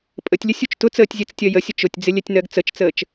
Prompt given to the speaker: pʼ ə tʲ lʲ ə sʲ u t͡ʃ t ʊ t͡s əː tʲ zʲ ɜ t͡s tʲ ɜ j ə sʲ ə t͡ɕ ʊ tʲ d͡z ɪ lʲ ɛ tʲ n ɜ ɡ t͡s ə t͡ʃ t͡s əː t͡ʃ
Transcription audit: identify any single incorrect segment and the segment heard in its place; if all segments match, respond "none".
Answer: t͡ɕ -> t͡ʃ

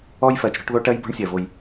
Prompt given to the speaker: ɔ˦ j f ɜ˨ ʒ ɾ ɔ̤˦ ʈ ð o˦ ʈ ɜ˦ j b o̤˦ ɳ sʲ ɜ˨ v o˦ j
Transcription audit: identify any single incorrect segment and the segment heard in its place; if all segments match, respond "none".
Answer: ʒ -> t͡ʃ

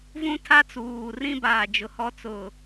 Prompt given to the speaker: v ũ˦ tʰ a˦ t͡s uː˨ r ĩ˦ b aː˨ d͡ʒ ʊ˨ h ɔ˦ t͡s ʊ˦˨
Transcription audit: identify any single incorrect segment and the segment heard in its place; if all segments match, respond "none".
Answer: none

